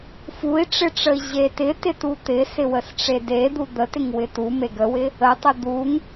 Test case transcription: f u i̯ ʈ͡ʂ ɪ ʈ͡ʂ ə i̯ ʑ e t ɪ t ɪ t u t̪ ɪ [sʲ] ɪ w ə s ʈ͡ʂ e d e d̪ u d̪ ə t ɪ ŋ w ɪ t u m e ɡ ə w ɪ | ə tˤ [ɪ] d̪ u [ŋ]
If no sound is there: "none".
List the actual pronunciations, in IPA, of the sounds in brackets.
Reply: s, ɪ, ŋ

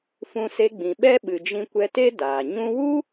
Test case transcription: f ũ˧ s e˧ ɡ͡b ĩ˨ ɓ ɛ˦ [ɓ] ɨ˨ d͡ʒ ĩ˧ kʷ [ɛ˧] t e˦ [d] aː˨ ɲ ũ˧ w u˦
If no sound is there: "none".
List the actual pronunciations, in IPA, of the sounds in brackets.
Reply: ɓ, ɛ˧, d

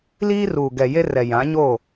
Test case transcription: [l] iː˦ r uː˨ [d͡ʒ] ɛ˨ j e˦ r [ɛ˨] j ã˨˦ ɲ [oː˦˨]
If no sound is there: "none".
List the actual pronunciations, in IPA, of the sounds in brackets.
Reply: l, ɡ, ɛ˨, oː˦˨

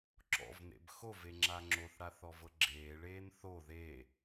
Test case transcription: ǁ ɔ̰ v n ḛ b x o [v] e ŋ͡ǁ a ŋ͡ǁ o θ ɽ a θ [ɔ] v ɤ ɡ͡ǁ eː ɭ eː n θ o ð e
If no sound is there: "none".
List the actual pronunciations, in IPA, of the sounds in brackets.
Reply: v, ɔ

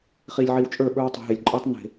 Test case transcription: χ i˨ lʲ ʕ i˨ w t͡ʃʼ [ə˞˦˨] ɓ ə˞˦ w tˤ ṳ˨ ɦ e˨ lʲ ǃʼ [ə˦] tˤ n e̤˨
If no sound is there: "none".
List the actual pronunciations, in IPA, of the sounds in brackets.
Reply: ə˞˦˨, ə˞˦

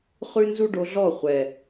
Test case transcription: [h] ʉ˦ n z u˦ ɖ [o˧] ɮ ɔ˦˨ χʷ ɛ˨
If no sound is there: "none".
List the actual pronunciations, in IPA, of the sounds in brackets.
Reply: χ, o˧

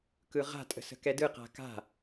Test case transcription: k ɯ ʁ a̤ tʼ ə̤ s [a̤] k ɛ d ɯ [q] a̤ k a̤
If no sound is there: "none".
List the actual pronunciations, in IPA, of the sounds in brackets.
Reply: ə̤, q

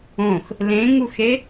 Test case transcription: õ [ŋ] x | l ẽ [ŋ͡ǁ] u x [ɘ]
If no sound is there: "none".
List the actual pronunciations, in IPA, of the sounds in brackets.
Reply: none, ŋ, e

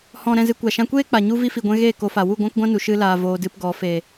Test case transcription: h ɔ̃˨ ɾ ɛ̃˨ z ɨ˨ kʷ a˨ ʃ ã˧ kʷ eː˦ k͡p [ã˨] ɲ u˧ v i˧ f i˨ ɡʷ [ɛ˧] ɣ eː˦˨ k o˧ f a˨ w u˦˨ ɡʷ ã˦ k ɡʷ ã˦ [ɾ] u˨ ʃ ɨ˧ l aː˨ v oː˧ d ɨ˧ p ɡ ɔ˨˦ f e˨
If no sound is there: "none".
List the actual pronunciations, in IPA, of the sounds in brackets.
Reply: a˨, ɛ̃˧, n

